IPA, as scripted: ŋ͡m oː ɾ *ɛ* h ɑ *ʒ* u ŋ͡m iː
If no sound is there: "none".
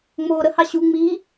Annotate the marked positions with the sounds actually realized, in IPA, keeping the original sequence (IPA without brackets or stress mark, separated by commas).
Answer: ə, ɕ